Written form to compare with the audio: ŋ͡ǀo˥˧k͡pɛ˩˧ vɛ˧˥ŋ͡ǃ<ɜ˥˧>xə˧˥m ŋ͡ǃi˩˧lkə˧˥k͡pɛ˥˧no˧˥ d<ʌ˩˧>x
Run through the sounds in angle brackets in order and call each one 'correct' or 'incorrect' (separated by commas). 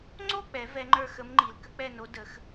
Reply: incorrect, incorrect